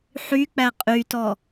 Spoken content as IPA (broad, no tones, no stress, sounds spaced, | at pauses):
ħ y k͡p æ qʼ y t ɔ